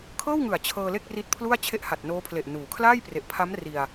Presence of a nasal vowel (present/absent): absent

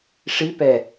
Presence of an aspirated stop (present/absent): absent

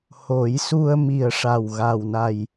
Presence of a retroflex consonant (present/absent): present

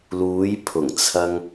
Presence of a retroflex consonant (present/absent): absent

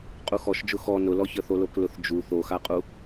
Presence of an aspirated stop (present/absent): absent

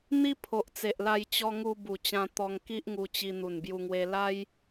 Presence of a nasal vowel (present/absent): present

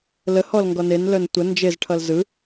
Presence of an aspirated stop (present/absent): present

